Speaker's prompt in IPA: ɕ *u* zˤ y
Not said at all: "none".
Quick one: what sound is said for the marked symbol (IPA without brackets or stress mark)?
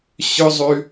ʏ